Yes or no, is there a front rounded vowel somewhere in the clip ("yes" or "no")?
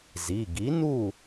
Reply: no